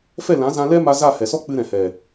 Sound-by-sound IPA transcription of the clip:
fɛ˦˨lã˨˦zã˧ lɛ˦ ma˧za˦˨hɛ˨sɔ˦ k͡pɨ˧ɾɛ̃˨hɛ˨

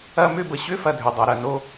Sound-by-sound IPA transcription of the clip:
ɐ˦mʏ˦bə˩ɕʏ˥ fɐ˨dʱʏ˩dˤa˩ ɾɐ˩no˦

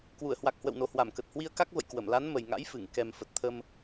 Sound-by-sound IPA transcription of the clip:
kwu˧˩ə̯hwa˨˩k̚ hwə̰˧˨wno˨˩ hwa˧˩mkə˨˩t̚ hwi˧ə̯ka˦˥k̚və̰˧˨j kwə˧˩mla˨˦n mə˨˩jŋa̰˧˥jfɨ˧˩ŋ kɛ˨˩m fə˨˩t̚t̪ʰə˧m

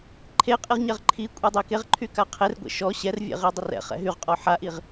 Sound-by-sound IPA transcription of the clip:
ǃʰeqʼiʁɲɛʁ ǃʰikʷʼɛdˤe keʁǃʰyka qʰerɡʷḛ ʃɔ ɕɛrvʲḛʁidˤər ɛ̰χɛ̰ ɦyʁqʼɔ ħaʔiʁ

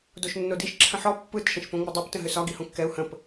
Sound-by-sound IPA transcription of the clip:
doʃnːodiʃ ǁʰə̃ħɔ pːɯt ʃə̃ʃpõŋ͡mədˤop tə̃ɦʏsɒ ɡihõkːɛu̯ hə̃p

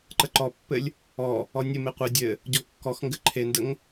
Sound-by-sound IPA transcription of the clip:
ǃəǃɔpːɘlʲ | ɔ | ɔnʲɘme qʷe dʲɘ | ɟɔkːɔxŋɡɘ ǃʰendəŋ

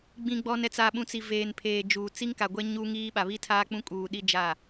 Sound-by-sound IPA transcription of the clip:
ɡ͡bĩ˨ɡ͡bɔ˨n ɛ˨t͡sa˨ɓũ˨ t͡si˨veː˨npʰeː˨d͡ʒuː˨ t͡si˦ŋka˨ɡʷɛ˦ ɲuː˦ŋiː˦ ɓa˨βi˦tʰaː˦ k͡pũ˦kʼuː˨ ɗi˦ d͡ʒa˦˨

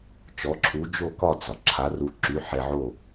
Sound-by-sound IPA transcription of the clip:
t͡ʃɔ˨˥ǁʰu˨˥ d͡ʒo˥˨kɒ˥˨d͡zɒ˩ ǁʰa˨˥ru˧ ǁy˨˥ħɛ˧ʕo˥˨

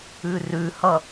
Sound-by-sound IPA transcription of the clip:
ʉrʉhʌ

